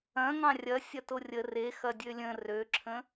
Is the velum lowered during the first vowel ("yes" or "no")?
yes